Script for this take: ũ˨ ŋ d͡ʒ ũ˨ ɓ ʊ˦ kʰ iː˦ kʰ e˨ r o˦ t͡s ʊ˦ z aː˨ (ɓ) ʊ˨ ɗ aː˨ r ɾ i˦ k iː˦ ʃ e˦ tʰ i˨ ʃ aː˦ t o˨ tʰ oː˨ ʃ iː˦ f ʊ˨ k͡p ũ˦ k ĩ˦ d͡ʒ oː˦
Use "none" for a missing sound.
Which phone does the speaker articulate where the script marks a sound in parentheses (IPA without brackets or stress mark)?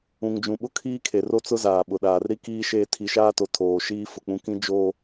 ɓ